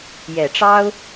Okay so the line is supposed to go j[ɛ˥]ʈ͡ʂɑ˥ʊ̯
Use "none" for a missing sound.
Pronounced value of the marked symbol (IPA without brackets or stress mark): ɛ˨˩